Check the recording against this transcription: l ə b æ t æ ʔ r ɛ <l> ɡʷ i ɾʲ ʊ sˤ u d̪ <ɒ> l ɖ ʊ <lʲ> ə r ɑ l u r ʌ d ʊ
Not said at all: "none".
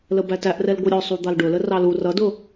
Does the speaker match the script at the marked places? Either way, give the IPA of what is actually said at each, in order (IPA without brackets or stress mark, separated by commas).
l, ɑ, l